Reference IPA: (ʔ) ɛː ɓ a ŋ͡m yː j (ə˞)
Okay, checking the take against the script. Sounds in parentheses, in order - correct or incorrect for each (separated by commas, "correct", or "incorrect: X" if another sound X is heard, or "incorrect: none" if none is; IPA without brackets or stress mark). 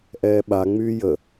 correct, incorrect: ə